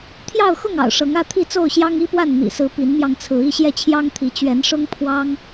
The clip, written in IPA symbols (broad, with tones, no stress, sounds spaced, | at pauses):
t̪ʰ j ɑ˥˨ ʊ̯ x ʊ˥˨ ŋ ɑ̰˨˩ ʊ̯ ʂ ɤ˨˦ ŋ ä˥˨ t̪ʰ i˥˨ t͡s o˥˨ ʊ̯ ɕ j ɑ˦ ŋ i˦ p w a˥˨ n n̪ ḭ˨˩ s ɹ̩˨˦ p i˨˦ n m j ɑ˧ ŋ t͡sʰ ɹ̩˨˦ i˥˨ ɕ j ɛ˥˨ t͡ɕʰ j ɑ˦ ŋ t̪ʰ i˨˦ t͡ɕ ɥ ɛ˨˦ n ʂ ʊ˦ ŋ pʰ w ɑ˦ ŋ